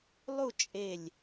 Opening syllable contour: falling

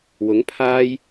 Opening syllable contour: rising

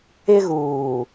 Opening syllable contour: high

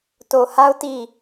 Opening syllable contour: low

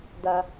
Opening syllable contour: high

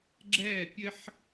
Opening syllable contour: falling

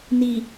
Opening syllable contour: low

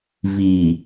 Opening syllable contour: low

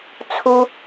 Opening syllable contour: high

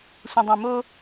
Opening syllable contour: low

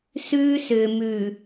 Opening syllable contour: high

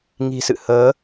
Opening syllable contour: low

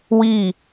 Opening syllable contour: falling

